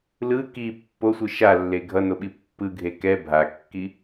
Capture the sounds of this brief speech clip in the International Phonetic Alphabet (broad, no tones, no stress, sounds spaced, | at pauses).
l ɯ k i pː o sʷ ɯ ʃ a lː e ɡʱ ʌ n o ɓ i pː ɯ ɡʱ e k ɛ bʱ a kː i